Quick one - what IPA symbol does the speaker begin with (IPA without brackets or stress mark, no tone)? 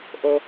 ʔ